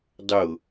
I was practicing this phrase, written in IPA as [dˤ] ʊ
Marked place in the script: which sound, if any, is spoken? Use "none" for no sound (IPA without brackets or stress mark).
dˤ